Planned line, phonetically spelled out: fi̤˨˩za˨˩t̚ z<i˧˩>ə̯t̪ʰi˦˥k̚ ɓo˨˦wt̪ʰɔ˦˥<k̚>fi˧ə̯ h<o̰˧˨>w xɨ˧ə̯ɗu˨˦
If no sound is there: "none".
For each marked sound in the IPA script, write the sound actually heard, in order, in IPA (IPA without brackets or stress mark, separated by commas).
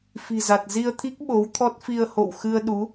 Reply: i˧, t̚, o̰˧˨